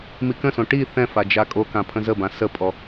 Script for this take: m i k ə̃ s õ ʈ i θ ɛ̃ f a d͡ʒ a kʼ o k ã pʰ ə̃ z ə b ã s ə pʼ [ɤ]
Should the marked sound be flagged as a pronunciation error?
yes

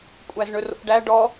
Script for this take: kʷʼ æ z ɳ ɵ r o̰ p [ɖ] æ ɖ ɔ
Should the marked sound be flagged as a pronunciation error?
no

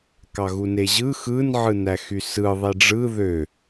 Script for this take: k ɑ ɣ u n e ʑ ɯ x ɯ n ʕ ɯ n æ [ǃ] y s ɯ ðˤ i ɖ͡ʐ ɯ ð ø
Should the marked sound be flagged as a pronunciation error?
yes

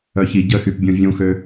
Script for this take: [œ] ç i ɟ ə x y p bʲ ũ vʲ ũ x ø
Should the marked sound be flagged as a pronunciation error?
no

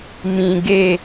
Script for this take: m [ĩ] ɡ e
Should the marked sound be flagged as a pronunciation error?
no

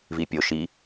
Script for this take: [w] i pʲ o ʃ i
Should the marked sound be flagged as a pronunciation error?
yes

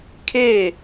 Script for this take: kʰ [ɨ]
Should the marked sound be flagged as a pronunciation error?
yes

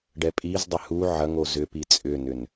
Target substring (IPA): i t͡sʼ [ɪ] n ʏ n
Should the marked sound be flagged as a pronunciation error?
yes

